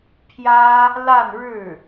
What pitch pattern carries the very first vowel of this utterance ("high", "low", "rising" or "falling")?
high